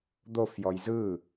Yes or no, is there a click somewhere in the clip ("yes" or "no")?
no